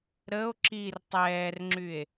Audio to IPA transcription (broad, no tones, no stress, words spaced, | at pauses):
ɾəo̯ ǁir tˤɛːrŋ͡ǁye̯